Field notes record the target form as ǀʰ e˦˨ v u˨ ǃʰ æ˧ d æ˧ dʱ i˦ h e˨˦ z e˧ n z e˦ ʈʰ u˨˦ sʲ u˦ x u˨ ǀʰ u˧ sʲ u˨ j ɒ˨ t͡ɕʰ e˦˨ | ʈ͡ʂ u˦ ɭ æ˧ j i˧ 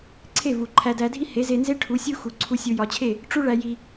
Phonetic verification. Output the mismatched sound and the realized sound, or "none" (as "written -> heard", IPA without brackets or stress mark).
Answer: none